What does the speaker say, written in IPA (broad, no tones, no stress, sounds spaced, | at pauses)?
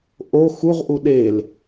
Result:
ʔ o x u ʁ ʔ u ɗ e l